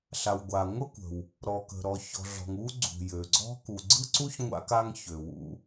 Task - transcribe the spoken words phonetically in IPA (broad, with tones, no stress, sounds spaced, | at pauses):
ɬ a˩ w ɡʷ a˩ ŋʷ ə˥ kʷ ə̤˩ w | ɾ ɔ˩ k ə̤˩ ɾ ɔ˩ ç ɔ̤˩ ɮ ɔ̤˩ ŋ u˥ ɡ͡ǀ ṳ˩ j ø˩ ɡ͡ǀ ɔ̤˥ k u˩ ɡ͡ǀ ɯ˥ ǀ u˥ ç ŋʷ a̰˥ k a˥ ŋ ç ø˩ w ṵ˥